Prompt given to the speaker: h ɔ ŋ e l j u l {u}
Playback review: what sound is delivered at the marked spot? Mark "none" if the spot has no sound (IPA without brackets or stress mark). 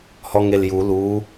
u